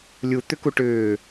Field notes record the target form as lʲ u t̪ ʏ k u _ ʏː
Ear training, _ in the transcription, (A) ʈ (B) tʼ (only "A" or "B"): A